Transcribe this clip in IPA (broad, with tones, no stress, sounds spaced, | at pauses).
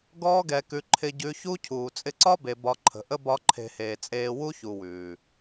ɡ ɔː˦ ɡ ɛ˧ k ʉ˧ ǃʰ ɪ˧ ɟ ʉ˧ ç u˦ cʰ uː˨ t͡sʼ ɪ˧ ǀ ɒ˦ b e˨ b ɒ˧ ǃʰ ə̤˨ ʔ ə˦ b ɒ˦ ǃʰ e̤˧ h eː˨ t͡sʼ eː˧ w u˦ ç u˨ w ʉː˨